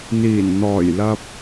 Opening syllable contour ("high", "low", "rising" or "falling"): low